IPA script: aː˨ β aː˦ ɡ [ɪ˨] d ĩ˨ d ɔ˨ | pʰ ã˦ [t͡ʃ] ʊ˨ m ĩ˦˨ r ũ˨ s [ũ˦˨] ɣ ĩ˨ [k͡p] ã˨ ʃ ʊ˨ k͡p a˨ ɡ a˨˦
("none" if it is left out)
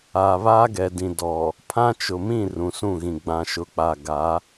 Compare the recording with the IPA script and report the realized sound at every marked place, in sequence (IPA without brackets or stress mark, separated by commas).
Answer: ɛ˨, t͡ʃ, ũ˦˨, ɡ͡b